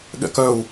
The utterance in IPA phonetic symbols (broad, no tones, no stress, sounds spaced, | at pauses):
ɠ ɛ̰ k œ u̯